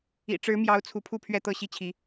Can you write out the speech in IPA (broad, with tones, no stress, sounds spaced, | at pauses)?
ḭ˨˩ ʈ͡ʂ ɻ̩˧˥ m j ɑ˧˥ ʊ̯ t͡sʰ u˧˥ pʰ u˥˧ pʰ ɥ ɛ˥˧ t̪ ɤ˥˧ ɕ i˥˩ t͡ɕʰ i˧˥